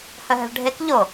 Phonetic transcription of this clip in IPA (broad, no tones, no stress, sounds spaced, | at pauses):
h œ ɦ ɛ̤ ɭ ɖʱ e k ʎ o